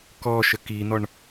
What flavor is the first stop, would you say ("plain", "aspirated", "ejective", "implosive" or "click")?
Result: plain